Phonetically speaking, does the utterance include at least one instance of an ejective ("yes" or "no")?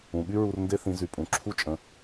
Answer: yes